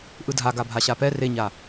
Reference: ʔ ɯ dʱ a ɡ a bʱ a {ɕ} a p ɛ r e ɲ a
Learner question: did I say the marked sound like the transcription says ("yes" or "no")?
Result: yes